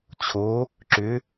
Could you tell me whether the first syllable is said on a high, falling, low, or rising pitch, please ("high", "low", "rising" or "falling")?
rising